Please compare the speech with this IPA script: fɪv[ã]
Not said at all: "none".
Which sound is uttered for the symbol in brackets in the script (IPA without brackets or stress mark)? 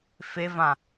ã